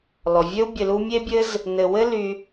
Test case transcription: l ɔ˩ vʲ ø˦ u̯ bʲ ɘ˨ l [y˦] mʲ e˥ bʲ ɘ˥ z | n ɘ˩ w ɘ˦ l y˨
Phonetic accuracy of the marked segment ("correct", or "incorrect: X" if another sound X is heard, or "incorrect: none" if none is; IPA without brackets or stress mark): incorrect: u˦